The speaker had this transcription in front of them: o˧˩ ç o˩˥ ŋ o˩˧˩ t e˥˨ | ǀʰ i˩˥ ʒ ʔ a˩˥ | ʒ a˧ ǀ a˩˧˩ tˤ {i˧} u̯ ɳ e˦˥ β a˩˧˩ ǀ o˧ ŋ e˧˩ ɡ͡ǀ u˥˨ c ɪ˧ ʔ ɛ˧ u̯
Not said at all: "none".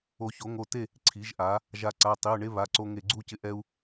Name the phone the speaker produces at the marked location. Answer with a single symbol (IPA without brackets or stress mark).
i˩˧˩